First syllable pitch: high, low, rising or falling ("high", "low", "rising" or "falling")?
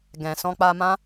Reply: low